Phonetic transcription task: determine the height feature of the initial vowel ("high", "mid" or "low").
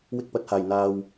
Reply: high